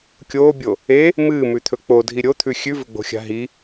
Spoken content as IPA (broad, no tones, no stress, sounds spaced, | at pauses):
kʲ oː bʲ o | e | m ɨː m ʉ t̪ʰ ɵ k͡p o dʱ i ɾʲ o t̪ʰ ʉ xʲ ʉ v ɵ ɡ͡b o̤ xʲ a̤ ɦ i